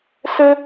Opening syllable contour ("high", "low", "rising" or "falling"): high